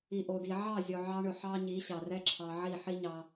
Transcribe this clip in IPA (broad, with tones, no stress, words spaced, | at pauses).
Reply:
i˨ʔo˨di˨ ʕɑ˦˨ zʲo˨ʕɑ˧ɳɵ˨ ħɑ˦ ɲi˨˦ɕɑ˨rɛ˦ǁʰɑ˧ ʕi˦˨ħi˦ ɲɑ˦